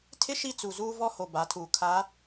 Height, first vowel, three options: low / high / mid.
high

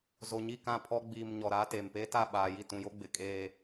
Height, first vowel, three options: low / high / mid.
mid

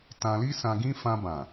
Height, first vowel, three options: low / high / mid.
low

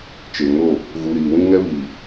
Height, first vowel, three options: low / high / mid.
mid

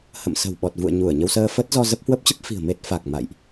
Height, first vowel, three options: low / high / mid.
mid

